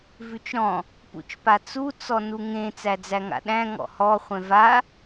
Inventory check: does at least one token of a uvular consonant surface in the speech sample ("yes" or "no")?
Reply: yes